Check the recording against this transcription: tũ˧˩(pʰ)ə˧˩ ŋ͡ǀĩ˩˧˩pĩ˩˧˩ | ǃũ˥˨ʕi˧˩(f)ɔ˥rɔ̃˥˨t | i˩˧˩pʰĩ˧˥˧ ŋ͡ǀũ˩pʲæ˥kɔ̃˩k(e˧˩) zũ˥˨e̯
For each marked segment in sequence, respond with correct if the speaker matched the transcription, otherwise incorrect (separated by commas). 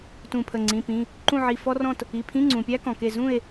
correct, correct, correct